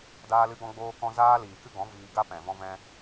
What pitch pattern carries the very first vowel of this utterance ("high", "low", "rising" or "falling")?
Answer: high